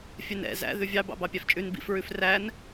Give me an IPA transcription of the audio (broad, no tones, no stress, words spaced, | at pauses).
fʲɛnɛ̰ zæ̰ ðʉvʲɑ bɑ̰bɑpʲæft͡ʃʼʉn bḭf ɹʉfræn